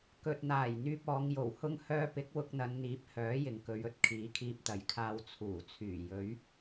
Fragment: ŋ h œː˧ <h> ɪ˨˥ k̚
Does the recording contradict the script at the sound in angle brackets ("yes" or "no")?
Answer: yes